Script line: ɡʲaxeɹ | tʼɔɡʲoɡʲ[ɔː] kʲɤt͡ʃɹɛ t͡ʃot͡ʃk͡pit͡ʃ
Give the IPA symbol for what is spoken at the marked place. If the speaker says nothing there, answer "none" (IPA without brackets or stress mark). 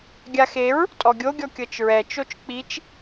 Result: ɔ